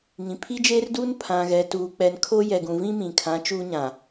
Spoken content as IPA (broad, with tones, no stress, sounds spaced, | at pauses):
ŋ ĩ˨ pʰ i˦ d͡ʒ eː˦ r d uː˦ n pʰ ã˨ ɣ ɛ˨ t uː˨ k͡p ɛ˨ n kʰ o˦ j ɛ˨ ɡ ũ˨ v ĩ˦ m ĩ˨ kʰ ã˨˦ t͡ʃ uː˦ ɲ ã˨